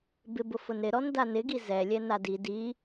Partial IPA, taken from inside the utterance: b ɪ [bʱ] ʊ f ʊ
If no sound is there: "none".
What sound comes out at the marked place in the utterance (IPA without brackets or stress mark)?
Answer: b